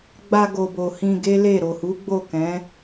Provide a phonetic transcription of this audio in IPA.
ɡ͡b a˧ ɡ o˨ b o˨ h ĩ˧ ɡ e˦ l e˦˨ ɾ o˨ h u˨˦ ɡ͡b o˦˨ k ɛ̃˨˦

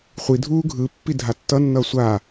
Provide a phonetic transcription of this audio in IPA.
χʷ i dʱ uː ɡʱ ɯ pː i dʱ a tː ʌ nː ʌː sʷ a

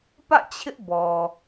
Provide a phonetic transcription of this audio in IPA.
p ä̰˦˨ t͡ɕʰ ɪ˦ ʔ b ɔ˨

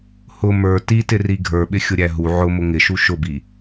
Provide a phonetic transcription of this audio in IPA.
h ʊ m ə˞ t i t ɪ r i ɡʱ ə˞ ɓ ɪ xʲ ʊ ɾʲ æ ɦ u ʕ ʊ m ʊ ŋ ɪ ʃ u ʃ ʊ b i

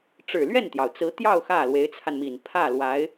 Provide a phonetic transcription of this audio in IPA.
ʈ͡ʂ ɻ̩˨˩ l ɥ ɛ˥˩ n t̪ j ɑ˩ ʊ̯ t͡s ɹ̩˧˥ t̪ j ɑ˥˧ ʊ̯ x ä˥˩ l w e˧˥ ɪ̯ t͡sʰ a˧ n m i˨˩ n pʰ ä˥˩ l w a˧˥ ɪ̯

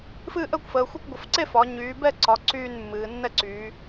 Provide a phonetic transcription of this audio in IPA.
f ɨː˥˨ ʔ əː˥˨ kʷ f əː˩˧ xʷ e˥˨ kʷ ɡʷ ə˩˧ f ǀ e˥˨ f ɒ˩˧ ɲ yː˩˧ b ɛ˥˨ ǀ ɒ˩˧ ǀ yː˥˨ n mː ɨː˩˧ nː ɛ˥˨ ǀ yː˩˧

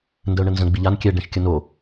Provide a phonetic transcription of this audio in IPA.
n d ə ʊ̯ ɳ ə n z ə̃ ɡ͡b i ʎ a n kʲ ɛ ɖ ɛ̃ ʃ kʲ ə n o

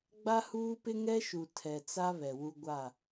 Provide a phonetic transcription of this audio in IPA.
ɡ͡b a˦ h uː˦ p ɪ˦ ŋ ɛ˦ ʃ u˨ tʰ ɛ˨ t͡s a˦ β ɛ˨ w u˦ ɡʷ a˦˨

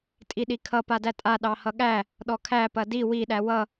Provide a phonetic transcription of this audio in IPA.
tʼ i ɗ i kʰ ʌ p a d æ tʼ a ɗ ɑ h ʌ ɠ æ | ɗ ɔ kʰ æ p ɐ d i w i ɗ æ w ʌ

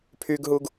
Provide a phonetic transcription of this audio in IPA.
pʰ y ɡ ɦ u ɡ

